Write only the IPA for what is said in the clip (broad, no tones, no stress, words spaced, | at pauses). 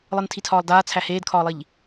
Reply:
lˠɯntʰitʰɒːlˠdaː t͡sʰæheːdkʰɒːlˠiʎ